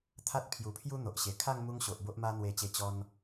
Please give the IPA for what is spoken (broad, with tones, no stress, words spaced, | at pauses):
t̪ʰa˦t̚pʰju˨˩pʰju˦ n̪o˨ʔɕe˨˩ kʰa˥˧ŋmu˧ŋ ɕo˨ʔbo˦ʔ ma˧n̪we˨˩t͡ɕe˨˩ t͡ɕɔ˧n